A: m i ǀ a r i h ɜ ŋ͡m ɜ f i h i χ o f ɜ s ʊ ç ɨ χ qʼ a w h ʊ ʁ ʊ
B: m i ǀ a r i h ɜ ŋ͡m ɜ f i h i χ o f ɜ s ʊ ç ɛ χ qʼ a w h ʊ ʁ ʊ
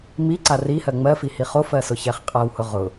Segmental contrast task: B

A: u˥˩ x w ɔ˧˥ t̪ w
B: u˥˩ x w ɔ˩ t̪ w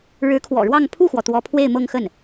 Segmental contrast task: B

